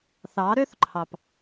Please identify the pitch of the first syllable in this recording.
rising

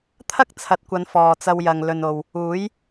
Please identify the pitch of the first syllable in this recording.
high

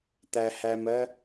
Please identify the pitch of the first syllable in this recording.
low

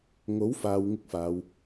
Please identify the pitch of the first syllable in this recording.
rising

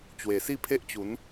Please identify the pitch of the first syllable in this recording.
low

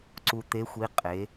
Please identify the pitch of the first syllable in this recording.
low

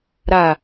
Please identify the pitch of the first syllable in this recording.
low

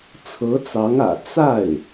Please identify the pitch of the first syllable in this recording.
rising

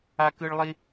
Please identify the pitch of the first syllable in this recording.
high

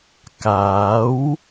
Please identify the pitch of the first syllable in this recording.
rising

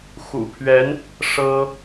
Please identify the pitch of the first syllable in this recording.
low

